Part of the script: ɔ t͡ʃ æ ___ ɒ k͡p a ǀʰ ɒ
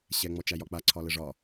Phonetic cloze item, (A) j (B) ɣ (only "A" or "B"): A